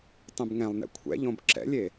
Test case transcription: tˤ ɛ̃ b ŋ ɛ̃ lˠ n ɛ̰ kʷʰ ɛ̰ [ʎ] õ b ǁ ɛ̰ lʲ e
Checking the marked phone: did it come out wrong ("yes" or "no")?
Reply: no